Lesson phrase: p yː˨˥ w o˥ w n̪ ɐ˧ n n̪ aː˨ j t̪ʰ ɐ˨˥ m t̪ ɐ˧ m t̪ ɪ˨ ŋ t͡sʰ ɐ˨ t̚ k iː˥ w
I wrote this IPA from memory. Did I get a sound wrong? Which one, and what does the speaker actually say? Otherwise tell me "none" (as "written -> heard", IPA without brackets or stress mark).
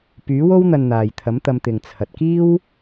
none